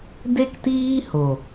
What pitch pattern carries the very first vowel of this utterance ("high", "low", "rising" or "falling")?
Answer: high